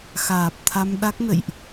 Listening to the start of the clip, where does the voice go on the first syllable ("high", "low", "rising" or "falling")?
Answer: low